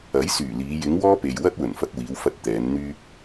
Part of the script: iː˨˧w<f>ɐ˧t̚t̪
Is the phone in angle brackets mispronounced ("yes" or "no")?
no